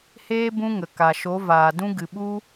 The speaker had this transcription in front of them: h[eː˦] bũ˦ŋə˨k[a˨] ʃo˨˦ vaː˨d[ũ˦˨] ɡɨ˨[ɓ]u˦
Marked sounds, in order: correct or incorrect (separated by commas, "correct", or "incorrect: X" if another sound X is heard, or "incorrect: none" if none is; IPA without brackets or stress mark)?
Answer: correct, correct, incorrect: ũ˦, correct